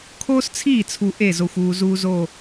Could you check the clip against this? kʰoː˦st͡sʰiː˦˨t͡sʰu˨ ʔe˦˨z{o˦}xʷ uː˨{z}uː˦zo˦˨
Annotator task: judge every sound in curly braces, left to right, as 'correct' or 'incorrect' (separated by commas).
incorrect, correct